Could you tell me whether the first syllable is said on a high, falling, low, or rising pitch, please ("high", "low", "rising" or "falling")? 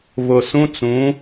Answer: low